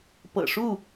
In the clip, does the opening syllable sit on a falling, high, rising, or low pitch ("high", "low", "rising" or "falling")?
low